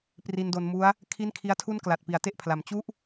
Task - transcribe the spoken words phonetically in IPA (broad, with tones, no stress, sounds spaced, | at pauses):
p r i˧ n d o˧ n m u˦˥ a̯ | kʰ i˥˩ n kʰ i˦˥ a̯ tʰ u˥˩ n k l a˨˩ t̚ p i˩˦ a̯ t e˥˩ ʔ pʰ l a˩˦ m t͡ɕ u˥˩ ʔ